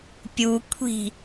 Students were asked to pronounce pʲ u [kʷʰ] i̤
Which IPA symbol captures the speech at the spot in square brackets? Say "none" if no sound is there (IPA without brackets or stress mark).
kʷʰ